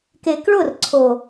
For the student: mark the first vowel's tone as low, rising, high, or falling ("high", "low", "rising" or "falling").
low